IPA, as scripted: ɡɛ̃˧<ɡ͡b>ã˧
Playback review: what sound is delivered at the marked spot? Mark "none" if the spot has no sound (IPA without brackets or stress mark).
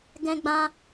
ɡ͡b